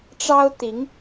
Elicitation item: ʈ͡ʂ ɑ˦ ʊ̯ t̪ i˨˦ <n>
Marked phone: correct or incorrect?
incorrect